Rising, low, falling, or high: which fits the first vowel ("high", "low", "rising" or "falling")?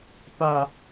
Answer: low